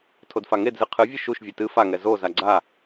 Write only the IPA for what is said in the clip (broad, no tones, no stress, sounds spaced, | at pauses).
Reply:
tʰ o d f a ŋ e d z ɨ qʰ ɨ vʲ ɨ ʃ u ʃ vʲ e t ɨ f a ŋ ɛ z o z a ɡ͡ǀ a